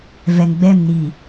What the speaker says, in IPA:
v ɛ˨ ŋ ɡ͡b ɛ˦˨ m n i˨

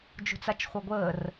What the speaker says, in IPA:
d͡ʒ ṳ t͡s a t͡ʃ χʷ œ ɡʷ əː r

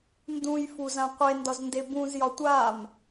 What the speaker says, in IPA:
n d ũ j f u z ã qʷ e n d ɒ z n d e b ũ z j ɒ tʷ a m

